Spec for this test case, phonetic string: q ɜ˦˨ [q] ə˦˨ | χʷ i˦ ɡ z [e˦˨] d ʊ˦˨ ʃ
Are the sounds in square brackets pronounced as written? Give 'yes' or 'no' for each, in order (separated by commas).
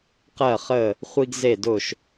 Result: no, yes